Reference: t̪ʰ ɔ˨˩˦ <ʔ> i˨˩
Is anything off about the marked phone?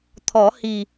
yes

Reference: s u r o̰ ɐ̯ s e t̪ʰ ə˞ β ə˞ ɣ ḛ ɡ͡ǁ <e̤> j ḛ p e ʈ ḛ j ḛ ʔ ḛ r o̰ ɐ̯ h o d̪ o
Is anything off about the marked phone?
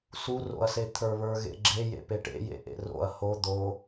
yes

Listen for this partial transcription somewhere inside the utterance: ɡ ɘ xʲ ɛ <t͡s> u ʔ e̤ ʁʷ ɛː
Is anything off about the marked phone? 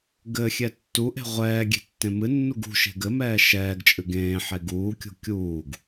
yes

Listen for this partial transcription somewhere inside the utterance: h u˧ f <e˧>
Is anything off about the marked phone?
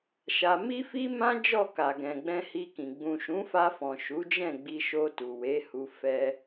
yes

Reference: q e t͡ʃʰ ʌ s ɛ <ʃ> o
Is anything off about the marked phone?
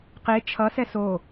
yes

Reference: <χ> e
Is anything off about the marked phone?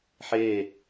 yes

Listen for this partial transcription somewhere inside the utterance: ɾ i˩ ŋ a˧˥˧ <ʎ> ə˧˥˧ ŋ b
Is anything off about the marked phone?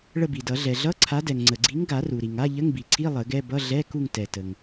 no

